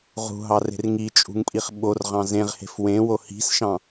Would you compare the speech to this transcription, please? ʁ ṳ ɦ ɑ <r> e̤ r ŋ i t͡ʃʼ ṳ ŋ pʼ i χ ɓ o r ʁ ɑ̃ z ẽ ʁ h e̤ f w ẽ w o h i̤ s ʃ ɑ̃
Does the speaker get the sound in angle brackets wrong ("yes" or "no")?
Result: no